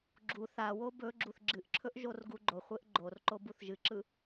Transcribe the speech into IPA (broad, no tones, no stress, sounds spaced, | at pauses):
ɡ͡ǁ u θ a w o b ɵ ɡ͡ǁ u θ ɡ͡ǁ ɨ ʔ ǁʰ ɵ ʔ ʒ o r ɡ u ɡ͡ǃ o χʷ e ʔ ɡ͡ǃ o r ǃ o b u θ ʒ ɨ ǁ ɯ